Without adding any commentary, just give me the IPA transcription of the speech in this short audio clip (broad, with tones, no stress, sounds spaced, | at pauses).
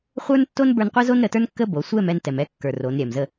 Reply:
χʷ ə˞˥ n tː o˥ n b ə˞˥ n qʷ ɛ˥ z o˥ n ɾ ə˩˧ t ə˞˥ n kː ə˥ b o˩˧ sʷ ɛ˥˧ m ɛ˥˧ n t ɛ˩ m ɛ˥˧ kː ə˞˩ r o˩˧ n ɾʲ ɛ˩ m z ə˥˧